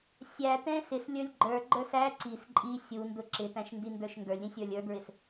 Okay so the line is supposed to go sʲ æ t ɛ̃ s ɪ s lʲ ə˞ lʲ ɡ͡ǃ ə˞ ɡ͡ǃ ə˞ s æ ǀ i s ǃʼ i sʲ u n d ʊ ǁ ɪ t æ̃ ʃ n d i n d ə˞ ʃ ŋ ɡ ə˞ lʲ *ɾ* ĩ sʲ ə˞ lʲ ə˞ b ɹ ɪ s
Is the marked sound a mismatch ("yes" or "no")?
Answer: no